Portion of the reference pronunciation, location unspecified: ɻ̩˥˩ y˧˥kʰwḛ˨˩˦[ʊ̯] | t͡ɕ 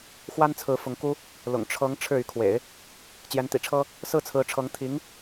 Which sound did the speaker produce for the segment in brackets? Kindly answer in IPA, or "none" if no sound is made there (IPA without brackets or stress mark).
ɪ̯